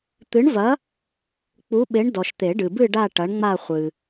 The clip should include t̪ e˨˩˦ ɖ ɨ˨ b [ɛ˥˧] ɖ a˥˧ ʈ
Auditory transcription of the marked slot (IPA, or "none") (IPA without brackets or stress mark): ɨ˥˧